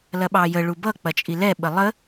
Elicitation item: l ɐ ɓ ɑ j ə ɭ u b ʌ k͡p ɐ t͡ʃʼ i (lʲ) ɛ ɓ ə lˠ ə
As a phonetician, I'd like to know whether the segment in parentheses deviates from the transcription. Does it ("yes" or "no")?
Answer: yes